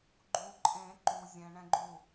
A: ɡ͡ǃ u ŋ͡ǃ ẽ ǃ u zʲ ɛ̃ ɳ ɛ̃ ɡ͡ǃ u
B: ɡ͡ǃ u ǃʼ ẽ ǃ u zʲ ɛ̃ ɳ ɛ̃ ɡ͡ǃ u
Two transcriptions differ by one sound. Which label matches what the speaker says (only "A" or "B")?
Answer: B